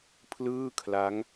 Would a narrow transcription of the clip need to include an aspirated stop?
yes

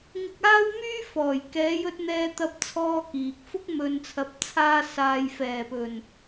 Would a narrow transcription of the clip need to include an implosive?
no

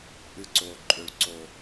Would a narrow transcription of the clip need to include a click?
yes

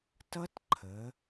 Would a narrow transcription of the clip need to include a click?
yes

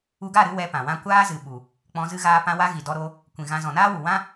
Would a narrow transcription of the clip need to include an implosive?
yes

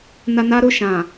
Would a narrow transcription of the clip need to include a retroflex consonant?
no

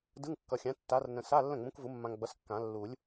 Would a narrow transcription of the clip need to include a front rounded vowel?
no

